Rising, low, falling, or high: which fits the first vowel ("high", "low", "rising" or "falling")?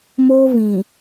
high